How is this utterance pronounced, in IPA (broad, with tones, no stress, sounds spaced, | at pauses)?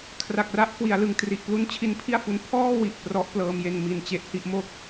kʰ r a˨˩ k̚ r a˦˥ ʔ k w i˩˦ a̯ l ɯ˨˩ ŋ t r i˨˩ ʔ p l u˦˥ n t͡ɕʰ i˦˥ n pʰ i˥˩ a̯ f u˧ n pʰ ɔː˥˩ w i˨˩ ʔ p r ɔ˦˥ ʔ p l ɤː˧ m j e˧ n m i˨˩ n t͡ɕ e˦˥ ʔ h i˥˩ ʔ m o˥˩ k̚